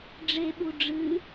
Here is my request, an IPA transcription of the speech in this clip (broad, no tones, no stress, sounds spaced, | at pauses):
ɖ͡ʐ e ɓ u ɖ͡ʐ ɨ